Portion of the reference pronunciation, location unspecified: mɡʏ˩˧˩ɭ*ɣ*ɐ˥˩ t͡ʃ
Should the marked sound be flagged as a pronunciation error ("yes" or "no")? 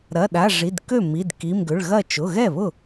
no